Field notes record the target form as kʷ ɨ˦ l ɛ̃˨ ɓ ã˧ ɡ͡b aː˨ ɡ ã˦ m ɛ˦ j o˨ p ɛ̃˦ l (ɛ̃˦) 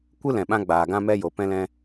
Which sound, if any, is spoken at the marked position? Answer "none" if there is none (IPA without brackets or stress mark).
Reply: ɛ̃˦